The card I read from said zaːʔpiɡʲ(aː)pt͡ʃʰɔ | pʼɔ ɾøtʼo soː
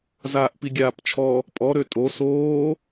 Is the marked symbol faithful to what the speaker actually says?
yes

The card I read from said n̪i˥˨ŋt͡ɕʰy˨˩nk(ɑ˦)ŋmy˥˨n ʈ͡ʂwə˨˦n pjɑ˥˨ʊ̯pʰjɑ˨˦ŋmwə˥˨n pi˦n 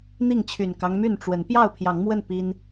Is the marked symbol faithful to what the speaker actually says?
yes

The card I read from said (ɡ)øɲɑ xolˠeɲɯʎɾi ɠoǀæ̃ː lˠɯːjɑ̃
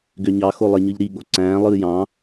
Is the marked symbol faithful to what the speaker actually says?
yes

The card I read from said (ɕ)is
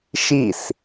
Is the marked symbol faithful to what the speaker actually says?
no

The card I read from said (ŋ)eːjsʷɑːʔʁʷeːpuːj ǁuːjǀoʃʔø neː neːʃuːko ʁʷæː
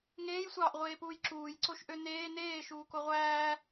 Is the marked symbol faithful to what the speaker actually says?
yes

